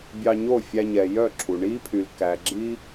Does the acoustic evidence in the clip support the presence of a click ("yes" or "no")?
yes